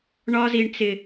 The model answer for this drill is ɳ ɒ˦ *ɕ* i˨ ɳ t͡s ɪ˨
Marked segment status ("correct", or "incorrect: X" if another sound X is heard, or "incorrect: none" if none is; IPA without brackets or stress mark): incorrect: z